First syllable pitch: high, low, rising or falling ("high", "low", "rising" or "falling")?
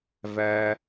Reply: high